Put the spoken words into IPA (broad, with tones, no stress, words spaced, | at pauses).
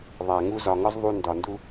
ðˤæ˨ŋu˦ zɒ˨ŋɒ˦z ðˤu˧ ndɒ˨ndu˦